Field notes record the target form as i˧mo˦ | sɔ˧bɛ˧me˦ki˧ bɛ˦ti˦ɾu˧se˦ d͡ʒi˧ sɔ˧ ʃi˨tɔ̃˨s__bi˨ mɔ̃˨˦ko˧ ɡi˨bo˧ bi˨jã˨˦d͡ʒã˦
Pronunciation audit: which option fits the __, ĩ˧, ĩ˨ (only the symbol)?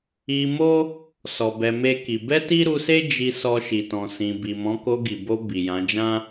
ĩ˨